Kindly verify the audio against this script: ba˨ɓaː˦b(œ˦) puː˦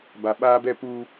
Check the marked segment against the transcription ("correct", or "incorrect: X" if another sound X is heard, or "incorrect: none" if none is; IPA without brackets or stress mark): incorrect: ɛ˦